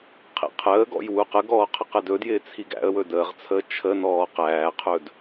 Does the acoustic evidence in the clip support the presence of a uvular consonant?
yes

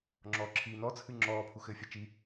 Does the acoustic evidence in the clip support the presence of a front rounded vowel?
no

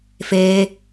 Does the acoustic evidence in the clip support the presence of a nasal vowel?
no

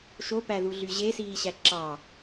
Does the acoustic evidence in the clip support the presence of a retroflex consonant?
no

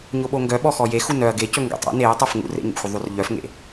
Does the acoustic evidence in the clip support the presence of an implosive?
yes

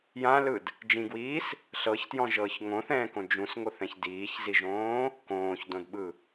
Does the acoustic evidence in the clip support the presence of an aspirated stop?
no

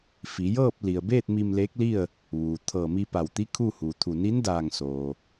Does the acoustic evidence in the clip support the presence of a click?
no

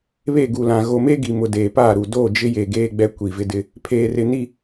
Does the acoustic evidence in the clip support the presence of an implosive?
no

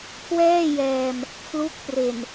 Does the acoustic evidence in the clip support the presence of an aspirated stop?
yes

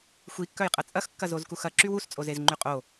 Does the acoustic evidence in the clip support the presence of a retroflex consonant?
no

